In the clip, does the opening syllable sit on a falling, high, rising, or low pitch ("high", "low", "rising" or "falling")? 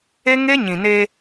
high